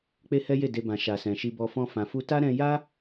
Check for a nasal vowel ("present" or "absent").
present